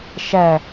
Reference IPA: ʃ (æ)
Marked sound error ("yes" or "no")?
no